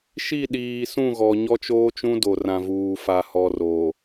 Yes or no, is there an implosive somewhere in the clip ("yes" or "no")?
yes